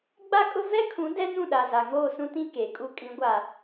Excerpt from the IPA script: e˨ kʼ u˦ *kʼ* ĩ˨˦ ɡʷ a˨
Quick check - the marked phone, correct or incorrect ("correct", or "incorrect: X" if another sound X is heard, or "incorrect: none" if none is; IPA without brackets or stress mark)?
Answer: correct